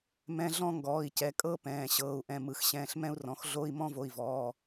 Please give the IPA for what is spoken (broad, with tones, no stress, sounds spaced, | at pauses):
m ɛ̃˧˥˧ ɮ ɔ̃˥˧ ŋ ɡ ɔː˩˧˩ i̯ c ɛ˩˧˩ kʼ ɤ˥˧ p ɛ̃ː˩˧˩ ɕ ɤː˩˧˩ u̯ ʔ ɛ̃˩˧˩ m ɯ˩˧˩ x ɕ ɛ̃ː˩˧˩ ɬ m ɛ̃˥˧ u̯ r ɔ̃˩˧˩ x ɮ o˧˥˧ i̯ m ɔ̃˥˧ v o˩˧˩ i̯ v ɔː˩˧˩